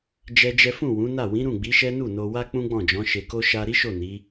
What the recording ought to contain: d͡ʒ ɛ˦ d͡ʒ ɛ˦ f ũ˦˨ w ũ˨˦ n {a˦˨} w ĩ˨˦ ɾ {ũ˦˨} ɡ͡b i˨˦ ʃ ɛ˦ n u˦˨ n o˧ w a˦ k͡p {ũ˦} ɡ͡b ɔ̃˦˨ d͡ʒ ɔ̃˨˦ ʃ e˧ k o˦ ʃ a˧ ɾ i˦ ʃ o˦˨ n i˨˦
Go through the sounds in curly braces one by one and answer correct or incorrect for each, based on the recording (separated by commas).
correct, correct, correct